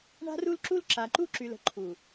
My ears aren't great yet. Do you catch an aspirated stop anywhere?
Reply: yes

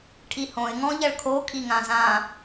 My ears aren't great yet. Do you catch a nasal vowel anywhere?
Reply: yes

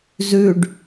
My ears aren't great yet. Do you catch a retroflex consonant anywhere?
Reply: yes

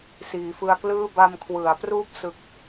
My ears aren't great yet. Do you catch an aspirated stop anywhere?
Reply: yes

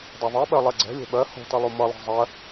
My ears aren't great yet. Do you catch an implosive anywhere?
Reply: yes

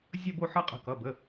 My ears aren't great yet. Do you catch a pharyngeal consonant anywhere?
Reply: yes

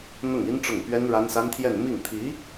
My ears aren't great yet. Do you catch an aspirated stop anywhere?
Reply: yes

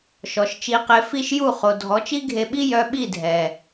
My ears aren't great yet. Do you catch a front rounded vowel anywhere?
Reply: yes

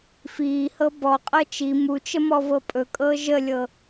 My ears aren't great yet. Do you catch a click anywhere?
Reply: no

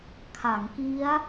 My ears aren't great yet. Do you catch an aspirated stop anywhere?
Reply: yes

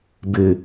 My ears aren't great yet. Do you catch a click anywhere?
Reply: no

